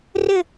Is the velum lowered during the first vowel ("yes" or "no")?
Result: no